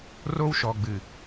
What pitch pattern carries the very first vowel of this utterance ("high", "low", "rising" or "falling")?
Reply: high